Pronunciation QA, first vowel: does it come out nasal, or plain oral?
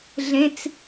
nasal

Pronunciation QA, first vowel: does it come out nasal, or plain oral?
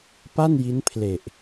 oral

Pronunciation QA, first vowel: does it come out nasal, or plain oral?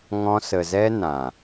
nasal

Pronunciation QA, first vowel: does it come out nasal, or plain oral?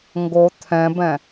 oral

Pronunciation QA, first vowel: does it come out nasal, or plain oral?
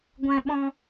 nasal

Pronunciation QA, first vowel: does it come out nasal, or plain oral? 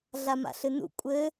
oral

